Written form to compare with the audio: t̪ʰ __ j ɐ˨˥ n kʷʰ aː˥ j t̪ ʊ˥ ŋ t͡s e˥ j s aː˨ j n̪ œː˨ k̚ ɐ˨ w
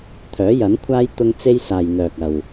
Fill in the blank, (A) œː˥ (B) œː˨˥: B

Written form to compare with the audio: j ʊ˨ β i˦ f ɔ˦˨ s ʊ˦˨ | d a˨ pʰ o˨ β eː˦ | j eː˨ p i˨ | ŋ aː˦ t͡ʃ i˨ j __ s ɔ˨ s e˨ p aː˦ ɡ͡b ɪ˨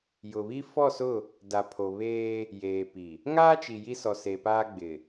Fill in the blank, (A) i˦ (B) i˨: A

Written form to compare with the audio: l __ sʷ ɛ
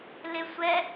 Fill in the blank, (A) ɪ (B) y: A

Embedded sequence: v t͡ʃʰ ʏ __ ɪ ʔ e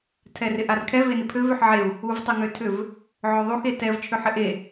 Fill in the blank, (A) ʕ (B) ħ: B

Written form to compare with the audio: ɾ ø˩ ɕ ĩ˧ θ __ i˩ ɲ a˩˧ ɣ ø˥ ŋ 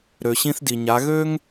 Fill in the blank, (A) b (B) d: B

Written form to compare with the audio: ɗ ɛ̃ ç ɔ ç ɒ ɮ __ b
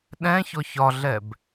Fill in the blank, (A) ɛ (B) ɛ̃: A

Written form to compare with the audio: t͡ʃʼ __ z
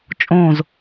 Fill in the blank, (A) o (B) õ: B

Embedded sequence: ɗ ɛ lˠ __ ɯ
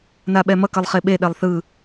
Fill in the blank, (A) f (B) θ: B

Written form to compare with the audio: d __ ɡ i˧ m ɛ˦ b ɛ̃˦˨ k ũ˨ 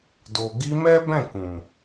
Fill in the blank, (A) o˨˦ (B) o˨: B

